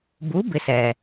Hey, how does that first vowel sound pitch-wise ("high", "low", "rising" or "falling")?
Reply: rising